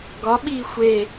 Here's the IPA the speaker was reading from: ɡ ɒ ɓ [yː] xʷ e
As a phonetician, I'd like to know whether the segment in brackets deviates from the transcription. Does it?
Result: yes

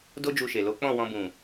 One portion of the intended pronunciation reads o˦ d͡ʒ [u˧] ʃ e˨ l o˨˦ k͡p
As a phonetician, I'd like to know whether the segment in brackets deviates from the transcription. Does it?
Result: no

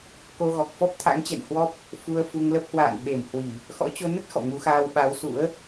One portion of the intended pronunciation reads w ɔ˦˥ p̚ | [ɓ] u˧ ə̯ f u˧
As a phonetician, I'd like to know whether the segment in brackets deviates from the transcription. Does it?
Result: yes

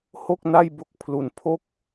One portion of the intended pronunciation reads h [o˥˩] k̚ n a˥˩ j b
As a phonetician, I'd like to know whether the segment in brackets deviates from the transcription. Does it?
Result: no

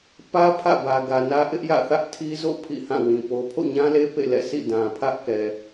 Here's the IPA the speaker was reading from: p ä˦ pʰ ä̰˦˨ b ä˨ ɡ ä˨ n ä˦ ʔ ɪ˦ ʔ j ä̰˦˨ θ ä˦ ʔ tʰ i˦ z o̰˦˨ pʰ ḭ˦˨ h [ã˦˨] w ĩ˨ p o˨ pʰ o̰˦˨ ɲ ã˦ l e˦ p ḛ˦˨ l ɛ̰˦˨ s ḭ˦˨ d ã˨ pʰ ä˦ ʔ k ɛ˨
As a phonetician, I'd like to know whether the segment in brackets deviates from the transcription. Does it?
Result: no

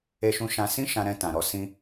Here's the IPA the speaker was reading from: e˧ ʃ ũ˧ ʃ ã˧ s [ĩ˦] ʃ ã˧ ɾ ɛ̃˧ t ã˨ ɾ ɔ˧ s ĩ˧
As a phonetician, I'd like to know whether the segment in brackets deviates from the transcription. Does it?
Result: no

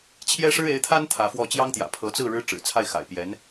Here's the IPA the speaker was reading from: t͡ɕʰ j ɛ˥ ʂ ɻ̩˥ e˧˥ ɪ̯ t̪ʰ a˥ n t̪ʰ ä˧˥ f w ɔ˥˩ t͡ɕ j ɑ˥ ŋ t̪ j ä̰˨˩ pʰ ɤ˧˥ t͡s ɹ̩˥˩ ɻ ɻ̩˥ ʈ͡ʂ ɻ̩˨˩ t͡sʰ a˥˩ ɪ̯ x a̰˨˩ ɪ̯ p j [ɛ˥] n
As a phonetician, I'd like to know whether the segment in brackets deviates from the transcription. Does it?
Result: yes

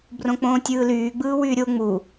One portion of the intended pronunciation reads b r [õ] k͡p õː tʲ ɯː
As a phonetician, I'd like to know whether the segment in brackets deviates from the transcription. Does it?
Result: no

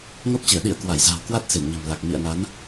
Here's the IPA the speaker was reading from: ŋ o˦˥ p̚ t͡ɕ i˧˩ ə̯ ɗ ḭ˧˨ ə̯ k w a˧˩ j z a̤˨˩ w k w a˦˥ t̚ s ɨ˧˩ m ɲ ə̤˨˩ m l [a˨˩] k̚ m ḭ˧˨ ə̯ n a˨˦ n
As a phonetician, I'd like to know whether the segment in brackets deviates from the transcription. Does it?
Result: no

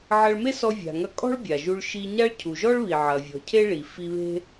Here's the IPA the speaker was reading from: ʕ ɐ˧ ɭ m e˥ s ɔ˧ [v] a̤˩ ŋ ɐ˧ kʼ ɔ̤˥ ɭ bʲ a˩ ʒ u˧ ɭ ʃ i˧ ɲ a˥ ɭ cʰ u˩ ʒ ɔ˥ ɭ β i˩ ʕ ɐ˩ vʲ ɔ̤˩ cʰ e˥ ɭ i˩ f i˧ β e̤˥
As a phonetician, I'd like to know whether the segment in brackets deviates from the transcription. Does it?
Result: yes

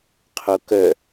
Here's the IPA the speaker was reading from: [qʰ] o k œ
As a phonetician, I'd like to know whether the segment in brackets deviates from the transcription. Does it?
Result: no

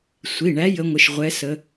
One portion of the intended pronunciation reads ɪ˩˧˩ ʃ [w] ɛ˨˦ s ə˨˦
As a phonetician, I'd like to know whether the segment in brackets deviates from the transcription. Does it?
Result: yes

